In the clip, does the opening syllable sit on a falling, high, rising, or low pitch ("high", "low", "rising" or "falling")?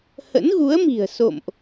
rising